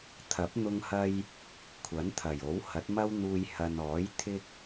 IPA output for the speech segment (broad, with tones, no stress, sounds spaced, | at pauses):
t̪ʰ ɐ˨˥ p̚ n̪ ʊ˧ ŋ h ɐ˧ j | kʷʰ ɐ˨˥ n t̪ʰ ɐ˨˩ j o˨˥ w h ɐ˨˥ t̚ m ɐ˥ w n̪ uː˧ j h ɐ˨ n ɔː˨˥ j t̪ʰ ɪ˥ k̚